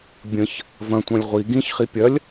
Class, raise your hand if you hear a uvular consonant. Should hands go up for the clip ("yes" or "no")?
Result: yes